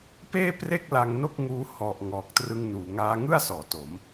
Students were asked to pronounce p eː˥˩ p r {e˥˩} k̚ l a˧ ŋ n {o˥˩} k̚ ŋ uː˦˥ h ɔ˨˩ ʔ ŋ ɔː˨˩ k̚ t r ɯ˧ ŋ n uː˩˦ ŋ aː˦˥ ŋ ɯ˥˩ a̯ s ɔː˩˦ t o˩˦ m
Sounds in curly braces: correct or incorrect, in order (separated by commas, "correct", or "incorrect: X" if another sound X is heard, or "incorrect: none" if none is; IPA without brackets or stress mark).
correct, correct